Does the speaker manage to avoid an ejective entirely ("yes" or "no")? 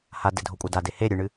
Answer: no